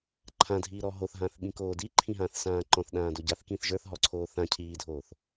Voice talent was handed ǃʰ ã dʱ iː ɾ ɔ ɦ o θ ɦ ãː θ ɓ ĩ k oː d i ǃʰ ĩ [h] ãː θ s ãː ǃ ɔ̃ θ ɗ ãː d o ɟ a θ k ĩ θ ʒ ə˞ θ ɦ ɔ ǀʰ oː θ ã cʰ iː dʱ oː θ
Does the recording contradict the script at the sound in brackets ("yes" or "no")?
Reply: yes